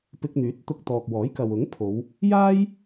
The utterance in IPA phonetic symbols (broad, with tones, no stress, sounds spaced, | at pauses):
p ɪ˧ k̚ n̪ yː˨˥ t̚ t̪ ʊ˧ k̚ t̪ ɔː˨ k̚ w ɔː˨˥ j k ɐ˨ w ʊ˨˥ ŋ pʰ o˨˧ w | j aː˥ j